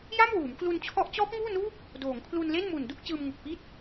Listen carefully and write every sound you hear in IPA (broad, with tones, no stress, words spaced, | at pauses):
ja˥˩m wuː˩˦mklu˧nt͡ɕʰɔ˦˥ʔ t͡ɕɔː˦˥p̚ŋuː˥˩nuː˥˩k̚ | doː˩˦ŋkʰlu˧nle˥˩n mu˨˩ndu˥˩k̚ t͡ɕɯː˧mŋu˨˩k̚pi˥˩t̚